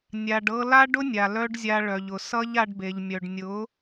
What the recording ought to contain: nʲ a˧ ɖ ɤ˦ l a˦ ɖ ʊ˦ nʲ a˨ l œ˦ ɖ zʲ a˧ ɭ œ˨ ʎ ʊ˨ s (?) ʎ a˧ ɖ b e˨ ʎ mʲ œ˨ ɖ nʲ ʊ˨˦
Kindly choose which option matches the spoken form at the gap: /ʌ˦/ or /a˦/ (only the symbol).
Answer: ʌ˦